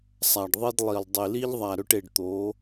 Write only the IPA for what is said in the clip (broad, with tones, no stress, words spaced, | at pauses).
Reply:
sˤa˨ɖðˤi˦dlˠi˨lˠ dˤi˨li˦ʎðˤa˨ ɾɵ˦ʈe˨ɖt̪oː˨˦